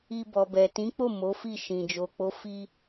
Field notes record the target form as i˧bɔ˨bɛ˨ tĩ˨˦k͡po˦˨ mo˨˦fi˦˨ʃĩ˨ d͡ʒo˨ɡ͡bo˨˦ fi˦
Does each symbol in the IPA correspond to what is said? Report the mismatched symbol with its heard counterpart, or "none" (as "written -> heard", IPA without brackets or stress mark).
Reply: ɡ͡b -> k͡p